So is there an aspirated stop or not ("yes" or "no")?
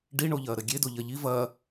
no